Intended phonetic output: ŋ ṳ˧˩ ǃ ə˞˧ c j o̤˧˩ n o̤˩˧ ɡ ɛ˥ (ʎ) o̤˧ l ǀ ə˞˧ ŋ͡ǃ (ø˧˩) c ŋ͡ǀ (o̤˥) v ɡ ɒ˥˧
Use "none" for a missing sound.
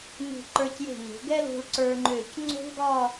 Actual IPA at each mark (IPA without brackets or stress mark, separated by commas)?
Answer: l, ø˧˩, o̤˥